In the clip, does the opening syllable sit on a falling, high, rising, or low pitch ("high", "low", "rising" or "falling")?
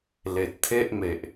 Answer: low